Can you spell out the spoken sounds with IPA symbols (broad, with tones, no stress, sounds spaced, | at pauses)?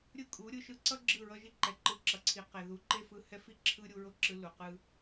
ɾʲ ɯ˦˨ kʼ u˨˦ ɾʲ ɯ˨ ʃ ɯ˦ ǀ ʌ˦ ɡ͡ǁ ɯ˦˨ ɹ ʌ˦ ʒ i˦ ǃ ɛ˨ ǃ ɯ˧ ǁ ʌ˨ ǀʰ i˨ q e˨ ð u˨ ǃ e˦ f ɯ˧ h ɛ˦ f i˦ ǁʰ ɯ˦ ɾʲ u˧ ɹ o˦ ǁ ɯ˧ l u˨ q ɯ˦